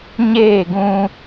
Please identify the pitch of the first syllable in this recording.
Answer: falling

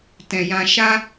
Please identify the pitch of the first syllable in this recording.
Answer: low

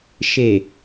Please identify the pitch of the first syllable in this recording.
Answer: low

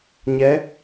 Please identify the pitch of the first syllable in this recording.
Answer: rising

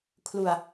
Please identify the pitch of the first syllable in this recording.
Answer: low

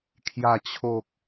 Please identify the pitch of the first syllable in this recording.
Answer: low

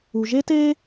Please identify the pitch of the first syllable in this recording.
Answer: low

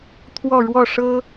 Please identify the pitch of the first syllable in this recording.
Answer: falling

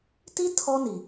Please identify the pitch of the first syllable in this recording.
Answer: high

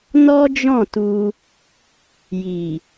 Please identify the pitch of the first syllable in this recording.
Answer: high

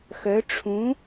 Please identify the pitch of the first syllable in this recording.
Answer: rising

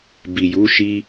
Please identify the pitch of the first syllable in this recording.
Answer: low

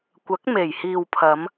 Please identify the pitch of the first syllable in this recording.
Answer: rising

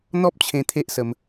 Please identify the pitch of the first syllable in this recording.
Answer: high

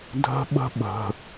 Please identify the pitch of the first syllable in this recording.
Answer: high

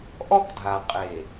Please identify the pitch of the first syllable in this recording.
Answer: high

